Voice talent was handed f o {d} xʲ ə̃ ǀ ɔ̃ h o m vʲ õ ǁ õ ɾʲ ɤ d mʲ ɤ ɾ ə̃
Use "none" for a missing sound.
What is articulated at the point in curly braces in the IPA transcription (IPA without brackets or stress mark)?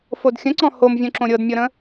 d